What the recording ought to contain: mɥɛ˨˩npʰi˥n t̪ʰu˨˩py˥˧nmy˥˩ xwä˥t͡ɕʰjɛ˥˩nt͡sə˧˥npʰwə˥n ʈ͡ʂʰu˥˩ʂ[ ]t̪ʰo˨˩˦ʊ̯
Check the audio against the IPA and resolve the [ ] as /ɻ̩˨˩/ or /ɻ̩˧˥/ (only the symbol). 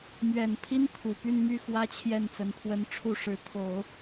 ɻ̩˧˥